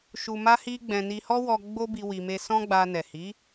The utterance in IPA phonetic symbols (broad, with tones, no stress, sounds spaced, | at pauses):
ʃ u˧ m a˦ h i˦ ɡ͡b ɛ̃˧ n i˧ h ɔ˦ w ɔ˧ ɡ͡b o˦ b i˧ w i˧ m e˦ s ɔ̃˦ ɡ͡b a˧ n ɛ˨ h i˨˦